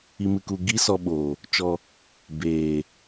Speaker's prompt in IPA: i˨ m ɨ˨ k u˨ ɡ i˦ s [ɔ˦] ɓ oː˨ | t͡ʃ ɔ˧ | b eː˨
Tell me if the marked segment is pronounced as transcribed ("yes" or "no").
no